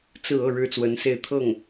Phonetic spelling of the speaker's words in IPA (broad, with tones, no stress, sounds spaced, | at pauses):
t͡s ɹ̩˥˧ ɤ˥˩ ɻ ɻ̩˥ t͡s w ə˧˥ n s e˥˧ ɪ̯ t̪ʰ ɤ˥˩ ŋ